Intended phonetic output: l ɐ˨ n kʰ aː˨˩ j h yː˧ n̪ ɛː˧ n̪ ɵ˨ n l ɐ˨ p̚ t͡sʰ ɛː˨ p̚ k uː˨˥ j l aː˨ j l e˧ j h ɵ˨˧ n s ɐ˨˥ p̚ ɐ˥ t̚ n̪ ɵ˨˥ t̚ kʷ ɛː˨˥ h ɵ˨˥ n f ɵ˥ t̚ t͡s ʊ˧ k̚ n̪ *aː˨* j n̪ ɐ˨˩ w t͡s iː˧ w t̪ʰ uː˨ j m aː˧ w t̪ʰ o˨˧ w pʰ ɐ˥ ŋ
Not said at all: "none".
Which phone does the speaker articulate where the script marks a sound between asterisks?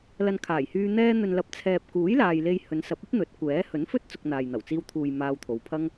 aː˨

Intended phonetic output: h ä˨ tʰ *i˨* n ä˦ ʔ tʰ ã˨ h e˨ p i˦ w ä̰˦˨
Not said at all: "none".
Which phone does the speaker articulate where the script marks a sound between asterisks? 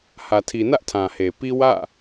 i˨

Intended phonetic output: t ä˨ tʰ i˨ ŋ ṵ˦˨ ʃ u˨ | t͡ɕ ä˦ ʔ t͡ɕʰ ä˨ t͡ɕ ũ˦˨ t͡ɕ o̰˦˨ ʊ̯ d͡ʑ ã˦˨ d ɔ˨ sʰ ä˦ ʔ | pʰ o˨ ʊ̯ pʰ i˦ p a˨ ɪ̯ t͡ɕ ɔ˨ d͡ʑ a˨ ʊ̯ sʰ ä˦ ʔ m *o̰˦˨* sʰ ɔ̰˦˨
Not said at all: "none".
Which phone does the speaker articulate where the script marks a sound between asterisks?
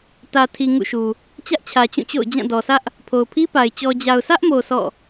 o˨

